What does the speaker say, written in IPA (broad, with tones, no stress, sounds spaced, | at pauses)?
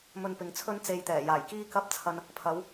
m ɵ˧ n p ɪ˨ ŋ t͡sʰ ɵ˥ n t͡s e˧ j t̪ ɛː˨˩ j aː˨˩ j k iː˥ k ɐ˥ p̚ t͡sʰ ɐ˧ n | pʰ ɐ˨˧ w